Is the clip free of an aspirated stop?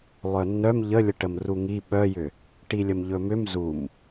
yes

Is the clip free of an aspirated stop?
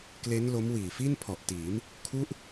no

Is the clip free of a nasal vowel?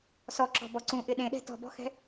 no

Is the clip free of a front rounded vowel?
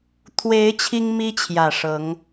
yes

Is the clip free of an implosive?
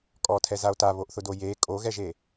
yes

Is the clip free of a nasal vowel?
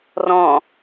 no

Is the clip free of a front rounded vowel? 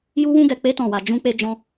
yes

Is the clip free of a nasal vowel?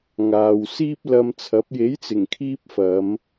yes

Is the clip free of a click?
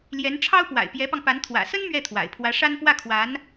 yes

